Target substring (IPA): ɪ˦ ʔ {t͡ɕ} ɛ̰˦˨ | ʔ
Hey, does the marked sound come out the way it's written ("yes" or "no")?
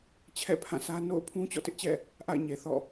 yes